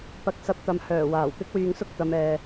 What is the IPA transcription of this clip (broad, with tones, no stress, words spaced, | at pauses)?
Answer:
pɐ˨k̚ sɐ˨˥p̚t̪ɐ˨m hœː˨˩waː˨˩w pɪ˨˥k̚wyː˨ŋsʊ˧k̚ t̪ɐ˨˧mɛː˨